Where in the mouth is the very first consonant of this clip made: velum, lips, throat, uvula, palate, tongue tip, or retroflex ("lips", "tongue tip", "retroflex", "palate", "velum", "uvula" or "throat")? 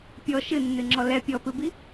lips